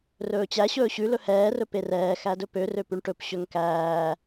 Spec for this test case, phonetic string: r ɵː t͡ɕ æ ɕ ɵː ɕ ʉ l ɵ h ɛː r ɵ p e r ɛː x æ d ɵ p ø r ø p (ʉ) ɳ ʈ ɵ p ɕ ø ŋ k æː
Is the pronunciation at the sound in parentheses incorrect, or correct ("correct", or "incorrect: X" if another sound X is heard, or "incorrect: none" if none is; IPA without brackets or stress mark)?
correct